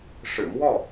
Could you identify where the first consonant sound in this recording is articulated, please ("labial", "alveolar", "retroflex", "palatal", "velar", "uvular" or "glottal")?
retroflex